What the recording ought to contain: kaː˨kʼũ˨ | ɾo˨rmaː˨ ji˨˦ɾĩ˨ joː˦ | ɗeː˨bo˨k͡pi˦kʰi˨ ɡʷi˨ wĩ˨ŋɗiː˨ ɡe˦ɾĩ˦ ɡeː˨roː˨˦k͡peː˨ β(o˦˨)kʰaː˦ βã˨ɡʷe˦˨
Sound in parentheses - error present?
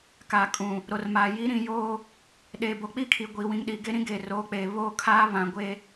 no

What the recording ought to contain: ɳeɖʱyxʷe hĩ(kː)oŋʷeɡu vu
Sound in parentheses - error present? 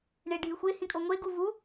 yes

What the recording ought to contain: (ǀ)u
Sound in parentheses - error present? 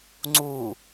yes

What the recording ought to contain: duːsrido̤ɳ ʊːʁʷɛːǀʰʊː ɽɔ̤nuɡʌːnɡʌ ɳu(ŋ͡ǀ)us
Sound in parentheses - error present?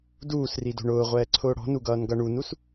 yes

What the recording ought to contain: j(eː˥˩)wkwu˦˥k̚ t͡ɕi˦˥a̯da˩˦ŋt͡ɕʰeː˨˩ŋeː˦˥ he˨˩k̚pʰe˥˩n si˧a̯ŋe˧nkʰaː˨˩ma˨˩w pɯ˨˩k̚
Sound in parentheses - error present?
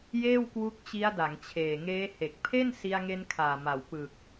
no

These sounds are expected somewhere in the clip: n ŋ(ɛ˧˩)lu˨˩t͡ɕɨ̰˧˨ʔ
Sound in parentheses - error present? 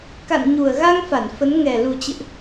yes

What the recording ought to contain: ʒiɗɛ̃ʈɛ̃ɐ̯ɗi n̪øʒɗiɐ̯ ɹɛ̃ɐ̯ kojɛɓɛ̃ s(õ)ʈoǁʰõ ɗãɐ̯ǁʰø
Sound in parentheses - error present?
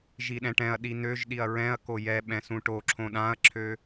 yes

